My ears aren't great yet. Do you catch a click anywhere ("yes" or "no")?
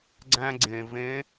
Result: yes